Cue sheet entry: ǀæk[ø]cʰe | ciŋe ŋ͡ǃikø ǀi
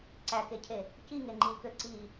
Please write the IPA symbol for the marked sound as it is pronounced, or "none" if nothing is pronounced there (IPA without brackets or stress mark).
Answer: e